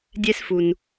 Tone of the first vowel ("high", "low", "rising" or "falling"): high